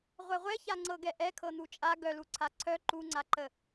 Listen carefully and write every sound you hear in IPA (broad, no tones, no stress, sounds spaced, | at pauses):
ʁʷ ɛ ʁʷ ɛ ç a ŋ͡ǀ ɤ ɡ ɛ ʔ ɛ kʰ ɤ n̪ u t͡ʃʼ a ɡ œ l u ǀʰ a ǀʰ œ ǃ u ŋ͡ǀ a ǃ ə